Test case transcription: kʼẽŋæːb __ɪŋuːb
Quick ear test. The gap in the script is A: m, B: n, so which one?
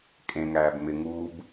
A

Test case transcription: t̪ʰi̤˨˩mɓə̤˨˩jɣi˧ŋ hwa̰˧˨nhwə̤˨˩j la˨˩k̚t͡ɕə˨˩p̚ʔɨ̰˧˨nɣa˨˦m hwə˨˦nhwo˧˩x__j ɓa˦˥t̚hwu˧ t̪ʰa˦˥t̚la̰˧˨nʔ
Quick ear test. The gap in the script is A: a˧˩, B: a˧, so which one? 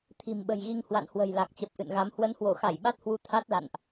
A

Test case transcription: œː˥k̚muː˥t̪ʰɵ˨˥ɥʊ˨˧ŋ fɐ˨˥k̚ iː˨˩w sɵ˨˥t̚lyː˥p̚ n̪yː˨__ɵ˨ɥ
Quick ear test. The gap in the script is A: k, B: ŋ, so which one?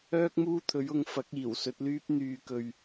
A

